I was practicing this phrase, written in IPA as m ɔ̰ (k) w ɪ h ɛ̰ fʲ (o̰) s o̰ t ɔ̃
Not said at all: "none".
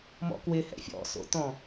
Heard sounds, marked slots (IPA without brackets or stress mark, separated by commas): k, ɔ̰